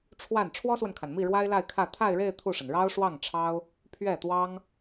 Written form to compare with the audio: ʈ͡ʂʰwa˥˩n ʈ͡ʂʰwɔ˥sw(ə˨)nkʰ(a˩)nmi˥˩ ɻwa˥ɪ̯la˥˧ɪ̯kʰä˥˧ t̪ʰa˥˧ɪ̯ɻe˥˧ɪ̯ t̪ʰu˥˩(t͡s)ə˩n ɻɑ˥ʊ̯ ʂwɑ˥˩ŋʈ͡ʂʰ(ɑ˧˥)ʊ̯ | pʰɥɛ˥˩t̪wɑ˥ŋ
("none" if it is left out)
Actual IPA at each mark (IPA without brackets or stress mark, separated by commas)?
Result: ə˨, a˩, ʂ, ɑ˥